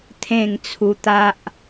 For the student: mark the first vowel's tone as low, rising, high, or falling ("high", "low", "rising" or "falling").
falling